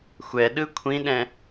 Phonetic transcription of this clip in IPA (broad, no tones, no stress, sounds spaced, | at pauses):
xʷ ɛ ɗ ɯ kʷʰ ĩ ɗ ɛ̃